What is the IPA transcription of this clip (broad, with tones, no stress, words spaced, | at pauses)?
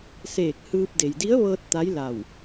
seː˧˩k̚ hɯː˧p̚ de˩jdi˧˥ə̯ʋɤː˧t̚ t̪a˧˥jla˧˩w